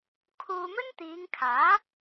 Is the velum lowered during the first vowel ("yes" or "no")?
no